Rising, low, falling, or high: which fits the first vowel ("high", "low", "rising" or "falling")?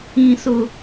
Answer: high